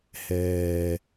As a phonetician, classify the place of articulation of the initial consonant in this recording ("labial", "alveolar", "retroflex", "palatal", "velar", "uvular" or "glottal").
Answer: glottal